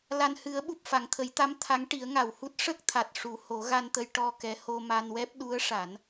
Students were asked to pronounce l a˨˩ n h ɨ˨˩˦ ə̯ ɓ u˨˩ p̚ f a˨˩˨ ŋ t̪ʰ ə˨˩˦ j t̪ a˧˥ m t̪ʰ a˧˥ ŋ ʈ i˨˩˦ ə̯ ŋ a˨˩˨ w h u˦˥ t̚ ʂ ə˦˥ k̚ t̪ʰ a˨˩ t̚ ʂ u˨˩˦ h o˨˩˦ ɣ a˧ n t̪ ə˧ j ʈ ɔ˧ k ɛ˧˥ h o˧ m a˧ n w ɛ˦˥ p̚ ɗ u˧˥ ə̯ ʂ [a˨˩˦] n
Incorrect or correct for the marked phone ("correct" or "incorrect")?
correct